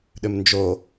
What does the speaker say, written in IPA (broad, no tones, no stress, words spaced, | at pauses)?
ɗʏmnd͡ʒo